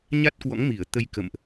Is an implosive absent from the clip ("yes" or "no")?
yes